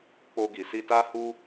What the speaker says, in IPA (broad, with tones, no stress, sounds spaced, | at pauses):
k͡p o˧ ɡ i˨ s i˧ t a˦ h u˦